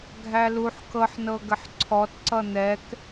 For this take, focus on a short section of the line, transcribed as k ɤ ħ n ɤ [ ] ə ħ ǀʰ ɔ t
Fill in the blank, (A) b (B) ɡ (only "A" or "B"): B